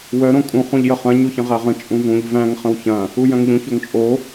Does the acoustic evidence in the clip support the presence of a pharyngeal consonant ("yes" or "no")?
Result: no